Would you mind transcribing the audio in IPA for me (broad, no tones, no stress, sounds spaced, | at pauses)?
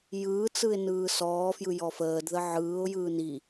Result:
j ɯː t͡s ɯ ɪ̯ n ɯː s ɔː f j ɯ j ɔ f əː d ð ə ʕ ɯː ʊ̯ j ɯː n i